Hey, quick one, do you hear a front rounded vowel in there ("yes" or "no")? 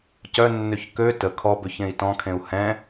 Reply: yes